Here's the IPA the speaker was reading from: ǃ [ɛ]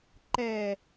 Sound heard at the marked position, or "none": ɛ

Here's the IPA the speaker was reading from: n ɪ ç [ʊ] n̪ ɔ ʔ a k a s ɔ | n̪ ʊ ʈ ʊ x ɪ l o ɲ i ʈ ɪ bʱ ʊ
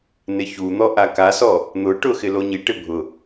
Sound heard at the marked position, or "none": u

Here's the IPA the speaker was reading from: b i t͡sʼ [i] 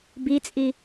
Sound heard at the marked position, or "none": i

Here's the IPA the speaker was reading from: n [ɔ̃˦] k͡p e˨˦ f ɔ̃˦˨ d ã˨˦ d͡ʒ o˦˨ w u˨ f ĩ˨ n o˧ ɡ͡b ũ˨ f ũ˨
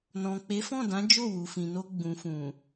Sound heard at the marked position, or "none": ɔ̃˨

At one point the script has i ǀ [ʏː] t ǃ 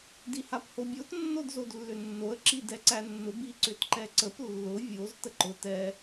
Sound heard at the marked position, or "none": ʏ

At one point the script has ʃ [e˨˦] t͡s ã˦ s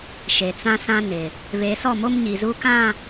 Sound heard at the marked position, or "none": e˨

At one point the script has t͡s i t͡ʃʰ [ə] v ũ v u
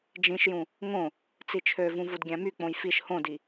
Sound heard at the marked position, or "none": ø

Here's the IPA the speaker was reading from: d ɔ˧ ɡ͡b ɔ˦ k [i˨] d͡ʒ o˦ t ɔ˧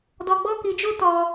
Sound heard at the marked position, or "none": i˧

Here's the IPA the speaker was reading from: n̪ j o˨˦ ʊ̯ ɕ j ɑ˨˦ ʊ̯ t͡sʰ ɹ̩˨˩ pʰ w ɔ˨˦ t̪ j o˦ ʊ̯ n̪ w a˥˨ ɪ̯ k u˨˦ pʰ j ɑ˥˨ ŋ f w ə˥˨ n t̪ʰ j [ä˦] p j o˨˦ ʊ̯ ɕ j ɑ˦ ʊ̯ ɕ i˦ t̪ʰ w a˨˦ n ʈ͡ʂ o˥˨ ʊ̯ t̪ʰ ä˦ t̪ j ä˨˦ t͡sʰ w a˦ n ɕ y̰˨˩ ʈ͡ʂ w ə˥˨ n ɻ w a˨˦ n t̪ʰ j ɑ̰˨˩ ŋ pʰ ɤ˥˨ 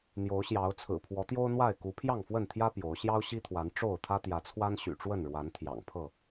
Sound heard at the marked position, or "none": ä˦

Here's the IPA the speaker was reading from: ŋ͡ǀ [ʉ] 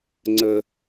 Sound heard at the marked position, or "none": ə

